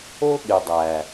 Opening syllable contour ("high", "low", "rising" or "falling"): high